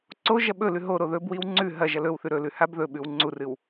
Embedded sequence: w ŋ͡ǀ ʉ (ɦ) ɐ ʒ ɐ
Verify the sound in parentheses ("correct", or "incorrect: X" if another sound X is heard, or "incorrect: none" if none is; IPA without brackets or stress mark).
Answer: correct